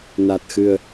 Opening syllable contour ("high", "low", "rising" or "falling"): low